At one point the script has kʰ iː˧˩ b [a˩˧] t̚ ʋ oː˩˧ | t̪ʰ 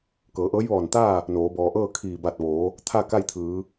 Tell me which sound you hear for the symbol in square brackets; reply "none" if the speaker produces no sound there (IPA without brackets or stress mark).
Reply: a˧˩